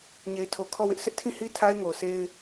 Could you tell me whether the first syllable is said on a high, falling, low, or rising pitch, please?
low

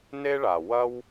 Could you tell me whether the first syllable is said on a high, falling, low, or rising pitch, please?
high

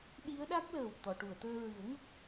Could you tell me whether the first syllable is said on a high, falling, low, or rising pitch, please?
rising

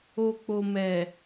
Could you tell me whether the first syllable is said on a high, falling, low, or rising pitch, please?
low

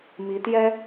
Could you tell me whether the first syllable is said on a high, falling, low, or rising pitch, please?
rising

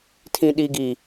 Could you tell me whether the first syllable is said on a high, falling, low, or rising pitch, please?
low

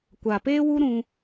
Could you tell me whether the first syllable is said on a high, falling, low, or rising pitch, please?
low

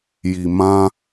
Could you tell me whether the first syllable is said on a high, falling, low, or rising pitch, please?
low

